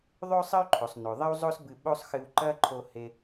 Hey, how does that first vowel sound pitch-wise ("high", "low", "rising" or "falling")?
high